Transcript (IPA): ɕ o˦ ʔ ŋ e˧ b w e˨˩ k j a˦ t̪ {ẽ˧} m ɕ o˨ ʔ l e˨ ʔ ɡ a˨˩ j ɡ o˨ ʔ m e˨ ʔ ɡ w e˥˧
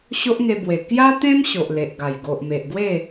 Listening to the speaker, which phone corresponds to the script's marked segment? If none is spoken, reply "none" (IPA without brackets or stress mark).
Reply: ẽ˦